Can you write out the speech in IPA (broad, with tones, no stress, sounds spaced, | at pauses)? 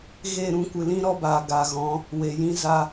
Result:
ɣ e˦˨ ɾ ũ˧ kʷ ɨ˨ l ĩ˦ ɾ ɔ˦ b aː˨ ɡ a˨ ɣ ɔ̃˨˦ | w e˨ j ĩ˦ z a˧